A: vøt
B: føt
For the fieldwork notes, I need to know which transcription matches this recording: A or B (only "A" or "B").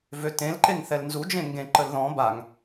A